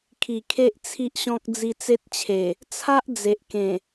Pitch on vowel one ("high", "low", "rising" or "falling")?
low